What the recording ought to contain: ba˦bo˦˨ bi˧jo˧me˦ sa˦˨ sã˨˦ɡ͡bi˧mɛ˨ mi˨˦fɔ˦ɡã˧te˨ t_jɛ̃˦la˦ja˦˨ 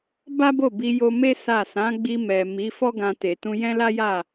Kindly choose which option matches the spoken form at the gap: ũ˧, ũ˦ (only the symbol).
ũ˧